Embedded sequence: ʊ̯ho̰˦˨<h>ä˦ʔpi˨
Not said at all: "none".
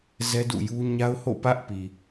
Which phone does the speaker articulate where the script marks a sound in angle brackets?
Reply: p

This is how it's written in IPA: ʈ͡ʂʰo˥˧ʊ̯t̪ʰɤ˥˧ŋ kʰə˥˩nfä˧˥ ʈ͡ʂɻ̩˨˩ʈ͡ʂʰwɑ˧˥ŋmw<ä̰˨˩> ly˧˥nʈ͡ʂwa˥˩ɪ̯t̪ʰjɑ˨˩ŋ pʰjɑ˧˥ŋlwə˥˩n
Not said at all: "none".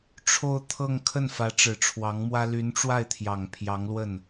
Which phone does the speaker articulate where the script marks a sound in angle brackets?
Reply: ä˥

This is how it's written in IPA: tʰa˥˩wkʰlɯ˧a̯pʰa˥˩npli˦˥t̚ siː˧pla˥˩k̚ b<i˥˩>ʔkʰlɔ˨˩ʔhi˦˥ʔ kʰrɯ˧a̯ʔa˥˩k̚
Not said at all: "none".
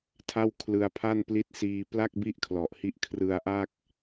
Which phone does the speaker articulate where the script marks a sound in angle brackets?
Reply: i˥˩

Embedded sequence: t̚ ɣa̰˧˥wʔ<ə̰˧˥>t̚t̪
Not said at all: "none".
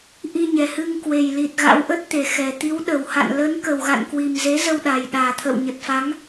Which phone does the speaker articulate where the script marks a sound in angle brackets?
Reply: ə˦˥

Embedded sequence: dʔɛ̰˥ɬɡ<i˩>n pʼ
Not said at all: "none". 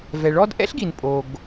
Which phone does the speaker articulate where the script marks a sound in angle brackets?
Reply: i˩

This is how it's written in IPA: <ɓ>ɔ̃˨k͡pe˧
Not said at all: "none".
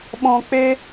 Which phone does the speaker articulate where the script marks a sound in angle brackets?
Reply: ɓ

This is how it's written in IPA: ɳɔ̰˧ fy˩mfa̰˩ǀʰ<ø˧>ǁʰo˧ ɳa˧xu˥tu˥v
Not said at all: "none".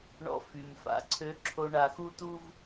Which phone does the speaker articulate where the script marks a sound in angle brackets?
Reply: ø˧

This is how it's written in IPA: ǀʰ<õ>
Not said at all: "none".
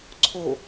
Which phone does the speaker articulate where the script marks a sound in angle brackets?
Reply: o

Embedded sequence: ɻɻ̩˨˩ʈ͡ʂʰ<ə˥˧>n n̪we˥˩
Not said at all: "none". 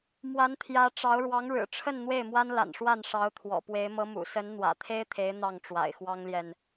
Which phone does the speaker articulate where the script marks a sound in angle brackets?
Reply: ə˥˧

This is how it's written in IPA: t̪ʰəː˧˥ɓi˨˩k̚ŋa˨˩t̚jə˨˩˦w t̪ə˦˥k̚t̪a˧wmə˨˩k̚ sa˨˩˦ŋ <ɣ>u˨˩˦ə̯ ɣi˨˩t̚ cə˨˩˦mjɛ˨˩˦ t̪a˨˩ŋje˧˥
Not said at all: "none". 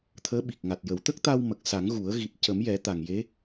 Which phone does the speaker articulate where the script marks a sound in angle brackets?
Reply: ɣ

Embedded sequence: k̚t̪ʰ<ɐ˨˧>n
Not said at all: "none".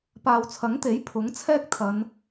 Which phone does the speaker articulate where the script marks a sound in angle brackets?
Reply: ɐ˨˧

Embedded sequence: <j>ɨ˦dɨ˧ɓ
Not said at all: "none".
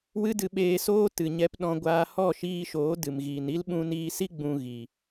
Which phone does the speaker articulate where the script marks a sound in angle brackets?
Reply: w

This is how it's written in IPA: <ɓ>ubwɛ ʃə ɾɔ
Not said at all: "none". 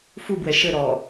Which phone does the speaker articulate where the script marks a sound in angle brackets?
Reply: f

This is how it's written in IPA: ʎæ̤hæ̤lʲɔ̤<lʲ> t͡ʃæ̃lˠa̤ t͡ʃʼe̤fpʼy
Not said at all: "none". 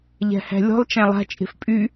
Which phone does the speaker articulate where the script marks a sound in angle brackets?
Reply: lˠ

